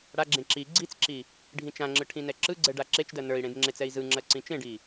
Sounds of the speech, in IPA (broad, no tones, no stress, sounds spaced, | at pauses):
ɽ a ɡ͡ǁ ẽ ǁ i ɡ͡ǀ i t͡s ǁ i | ɖʱ ĩ t͡ʃ ã ŋ͡ǁ ɯ ʈʰ ĩ n ɛ ǁ ɯ ɡ͡ǀ ɛ ɖ a ǁ e t͡ʃ d ɜ n ə˞ i̯ ɽ ẽ d ŋ͡ǁ e t͡s ɛ i̯ z ɯ ŋ͡ǁ ɜ ǀ ĩ t͡ʃ ẽ ɖ i